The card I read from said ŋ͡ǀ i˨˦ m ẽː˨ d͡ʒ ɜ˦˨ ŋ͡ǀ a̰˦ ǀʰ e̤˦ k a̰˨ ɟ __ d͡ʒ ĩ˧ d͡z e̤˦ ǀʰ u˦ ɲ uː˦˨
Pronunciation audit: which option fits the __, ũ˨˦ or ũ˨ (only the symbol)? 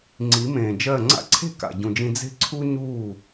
ũ˨